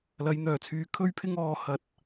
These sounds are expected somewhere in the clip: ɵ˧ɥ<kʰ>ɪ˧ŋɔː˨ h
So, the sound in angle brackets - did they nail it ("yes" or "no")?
no